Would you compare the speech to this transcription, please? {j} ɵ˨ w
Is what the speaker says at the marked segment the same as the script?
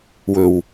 no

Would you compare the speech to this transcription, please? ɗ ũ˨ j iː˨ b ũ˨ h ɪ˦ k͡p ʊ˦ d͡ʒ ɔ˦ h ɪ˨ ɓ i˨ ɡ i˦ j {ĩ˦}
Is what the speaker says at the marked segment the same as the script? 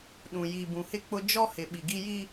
no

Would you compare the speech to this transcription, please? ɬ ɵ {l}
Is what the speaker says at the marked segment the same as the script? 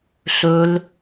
yes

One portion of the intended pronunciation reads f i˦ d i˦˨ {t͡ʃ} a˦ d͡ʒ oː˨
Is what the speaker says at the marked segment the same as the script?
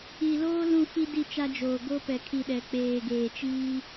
yes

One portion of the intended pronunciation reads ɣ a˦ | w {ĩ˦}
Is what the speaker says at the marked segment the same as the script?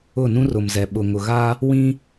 yes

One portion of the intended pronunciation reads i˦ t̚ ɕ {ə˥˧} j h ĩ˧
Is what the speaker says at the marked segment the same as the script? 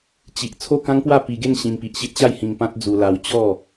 no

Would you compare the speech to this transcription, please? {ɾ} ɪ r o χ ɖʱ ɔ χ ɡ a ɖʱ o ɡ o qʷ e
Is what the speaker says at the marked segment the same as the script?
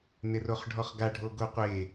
no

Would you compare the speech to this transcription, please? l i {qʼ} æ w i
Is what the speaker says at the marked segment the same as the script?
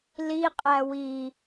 yes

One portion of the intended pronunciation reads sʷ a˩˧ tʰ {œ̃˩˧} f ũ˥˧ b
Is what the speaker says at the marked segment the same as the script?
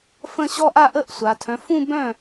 yes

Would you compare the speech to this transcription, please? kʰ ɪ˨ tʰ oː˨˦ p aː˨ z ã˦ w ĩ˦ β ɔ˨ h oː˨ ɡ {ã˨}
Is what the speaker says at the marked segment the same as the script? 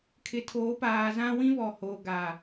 no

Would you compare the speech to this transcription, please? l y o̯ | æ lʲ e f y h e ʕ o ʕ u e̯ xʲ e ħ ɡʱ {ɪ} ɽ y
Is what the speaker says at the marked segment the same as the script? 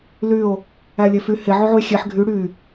no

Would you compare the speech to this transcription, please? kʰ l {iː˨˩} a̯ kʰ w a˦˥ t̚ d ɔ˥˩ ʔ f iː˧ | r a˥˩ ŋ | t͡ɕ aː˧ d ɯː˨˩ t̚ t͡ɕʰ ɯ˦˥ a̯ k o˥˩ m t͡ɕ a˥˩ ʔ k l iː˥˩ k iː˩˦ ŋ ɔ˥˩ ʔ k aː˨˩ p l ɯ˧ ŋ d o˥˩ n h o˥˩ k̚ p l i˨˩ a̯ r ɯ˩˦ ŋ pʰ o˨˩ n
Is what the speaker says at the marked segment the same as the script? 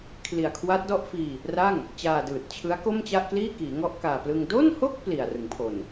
no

